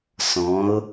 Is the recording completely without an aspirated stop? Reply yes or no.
yes